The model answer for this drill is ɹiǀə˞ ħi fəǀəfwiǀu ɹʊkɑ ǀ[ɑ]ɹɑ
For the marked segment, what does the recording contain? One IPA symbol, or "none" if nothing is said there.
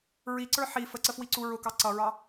ʌ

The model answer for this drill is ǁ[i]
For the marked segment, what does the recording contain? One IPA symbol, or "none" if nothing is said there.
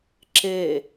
e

